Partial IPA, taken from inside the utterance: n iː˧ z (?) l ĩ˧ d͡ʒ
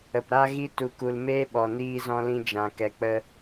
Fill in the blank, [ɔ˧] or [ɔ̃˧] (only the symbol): ɔ̃˧